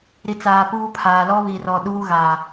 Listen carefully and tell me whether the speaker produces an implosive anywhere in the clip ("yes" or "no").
yes